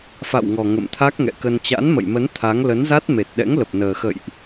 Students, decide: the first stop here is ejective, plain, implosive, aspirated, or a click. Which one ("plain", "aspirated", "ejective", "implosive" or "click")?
aspirated